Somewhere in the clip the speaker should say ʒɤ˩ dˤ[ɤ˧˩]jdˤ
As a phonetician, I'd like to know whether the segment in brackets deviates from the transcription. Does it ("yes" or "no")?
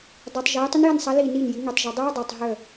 yes